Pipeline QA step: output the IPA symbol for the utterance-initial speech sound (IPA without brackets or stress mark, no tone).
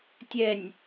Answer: tʲ